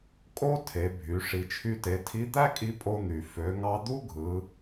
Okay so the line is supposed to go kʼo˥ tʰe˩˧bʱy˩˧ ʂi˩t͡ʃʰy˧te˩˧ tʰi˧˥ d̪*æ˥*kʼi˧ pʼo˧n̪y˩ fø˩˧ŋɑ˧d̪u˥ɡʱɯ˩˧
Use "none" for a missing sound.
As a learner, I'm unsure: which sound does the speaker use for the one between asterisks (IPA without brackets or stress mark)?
æ˥